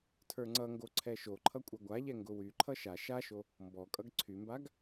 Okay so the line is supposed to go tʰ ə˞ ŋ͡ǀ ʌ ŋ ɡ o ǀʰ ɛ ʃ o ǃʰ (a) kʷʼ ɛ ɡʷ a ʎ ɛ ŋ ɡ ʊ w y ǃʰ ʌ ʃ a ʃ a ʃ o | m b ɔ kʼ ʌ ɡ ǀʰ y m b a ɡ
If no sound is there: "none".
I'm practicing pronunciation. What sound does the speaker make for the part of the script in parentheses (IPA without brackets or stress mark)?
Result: ʌ